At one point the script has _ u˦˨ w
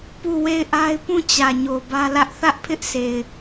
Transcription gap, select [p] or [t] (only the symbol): p